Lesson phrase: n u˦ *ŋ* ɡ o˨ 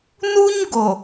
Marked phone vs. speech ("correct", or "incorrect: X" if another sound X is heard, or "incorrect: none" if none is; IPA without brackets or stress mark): incorrect: ɲ